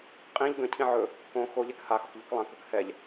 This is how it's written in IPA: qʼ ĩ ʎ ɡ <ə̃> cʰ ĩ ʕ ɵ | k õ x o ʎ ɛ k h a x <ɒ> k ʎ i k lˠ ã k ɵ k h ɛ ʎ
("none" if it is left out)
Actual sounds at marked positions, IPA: ə̃, ɒ

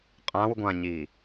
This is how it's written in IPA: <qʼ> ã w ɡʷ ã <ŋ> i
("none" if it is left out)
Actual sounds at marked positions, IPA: qʼ, ɲ

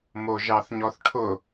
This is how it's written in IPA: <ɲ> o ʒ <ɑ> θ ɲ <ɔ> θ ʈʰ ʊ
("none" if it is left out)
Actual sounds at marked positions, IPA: m, ɑ, ɔ

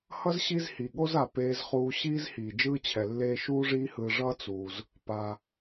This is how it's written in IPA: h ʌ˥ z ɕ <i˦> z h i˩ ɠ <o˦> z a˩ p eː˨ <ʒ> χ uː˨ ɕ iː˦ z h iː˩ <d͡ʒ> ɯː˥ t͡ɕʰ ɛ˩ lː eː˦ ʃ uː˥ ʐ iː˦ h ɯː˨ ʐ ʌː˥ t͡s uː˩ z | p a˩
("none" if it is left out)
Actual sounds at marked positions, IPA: i˦, o˥, z, d͡ʒ

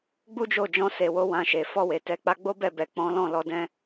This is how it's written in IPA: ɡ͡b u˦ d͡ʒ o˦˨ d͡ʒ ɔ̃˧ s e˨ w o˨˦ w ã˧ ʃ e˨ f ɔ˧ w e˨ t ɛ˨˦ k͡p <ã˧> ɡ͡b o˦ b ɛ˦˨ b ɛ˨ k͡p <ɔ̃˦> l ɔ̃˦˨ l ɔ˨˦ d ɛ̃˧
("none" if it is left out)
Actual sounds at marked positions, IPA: a˧, ɔ̃˨˦

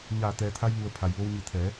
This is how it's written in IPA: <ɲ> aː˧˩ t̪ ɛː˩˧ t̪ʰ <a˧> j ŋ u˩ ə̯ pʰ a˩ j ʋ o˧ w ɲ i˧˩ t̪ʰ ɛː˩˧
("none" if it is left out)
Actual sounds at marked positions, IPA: ɲ, a˧

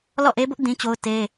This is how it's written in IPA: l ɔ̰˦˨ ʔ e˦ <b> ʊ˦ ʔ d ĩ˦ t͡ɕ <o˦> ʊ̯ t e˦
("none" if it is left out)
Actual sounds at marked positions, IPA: b, o˦

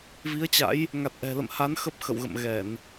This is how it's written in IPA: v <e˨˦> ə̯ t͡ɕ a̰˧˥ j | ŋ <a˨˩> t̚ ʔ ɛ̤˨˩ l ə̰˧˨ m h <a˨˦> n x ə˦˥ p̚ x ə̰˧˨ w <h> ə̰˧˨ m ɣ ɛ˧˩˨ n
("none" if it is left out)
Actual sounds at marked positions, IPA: i˨˦, a˨˩, a˨˦, ɣ

